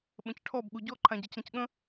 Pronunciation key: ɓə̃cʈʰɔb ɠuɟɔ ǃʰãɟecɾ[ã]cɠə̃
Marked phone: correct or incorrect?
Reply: incorrect